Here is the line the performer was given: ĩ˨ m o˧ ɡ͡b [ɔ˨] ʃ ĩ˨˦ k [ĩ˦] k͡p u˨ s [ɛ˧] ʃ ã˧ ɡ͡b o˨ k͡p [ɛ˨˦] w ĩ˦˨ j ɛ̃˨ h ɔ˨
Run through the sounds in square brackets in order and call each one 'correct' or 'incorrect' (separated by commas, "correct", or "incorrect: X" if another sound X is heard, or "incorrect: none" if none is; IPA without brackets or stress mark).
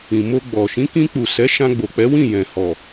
correct, incorrect: ĩ˧, incorrect: ɛ˨˦, correct